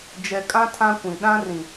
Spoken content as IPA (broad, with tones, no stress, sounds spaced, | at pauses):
d͡ʒ ɛ˨ kʼ ã˦ tʰ ã˦ kʷ ĩ˨ ɗ ã˦ r ĩ˨